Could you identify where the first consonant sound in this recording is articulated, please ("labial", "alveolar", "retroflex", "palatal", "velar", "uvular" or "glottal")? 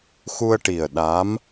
velar